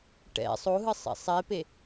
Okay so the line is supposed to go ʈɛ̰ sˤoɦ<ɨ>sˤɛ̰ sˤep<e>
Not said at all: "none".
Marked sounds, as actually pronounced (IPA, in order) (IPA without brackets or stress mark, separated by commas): ɨ, e